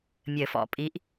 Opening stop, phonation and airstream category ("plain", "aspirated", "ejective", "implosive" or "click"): ejective